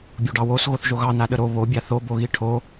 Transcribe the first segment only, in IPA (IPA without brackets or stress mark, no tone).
bʲ